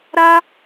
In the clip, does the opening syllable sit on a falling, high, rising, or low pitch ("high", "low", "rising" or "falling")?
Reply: high